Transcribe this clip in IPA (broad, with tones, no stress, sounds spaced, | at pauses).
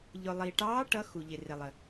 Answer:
ʎ ʊ˨ lˠ i˨ ʈ ɑː˧˥ ʈ ʌ˧˥ x u˨ ʎ ɪ˨ r ɪ˨ lˠ ə˨